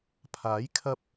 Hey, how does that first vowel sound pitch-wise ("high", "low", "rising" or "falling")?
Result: rising